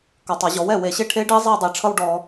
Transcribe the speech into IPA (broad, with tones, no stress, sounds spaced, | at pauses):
k ɔ˨˩ tˤ ʌ˧˩˧ ʑ ɔ˩˥ w ɛ˨˩ w e˧˩˧ ɕ e˥˧ ʈʰ e˦˥ ɖ i˦˥ zˤ e˥˧ dˤ i˨˩ ʈ͡ʂʰ ʌ˥˧ w ɖ ɔ˧˩˧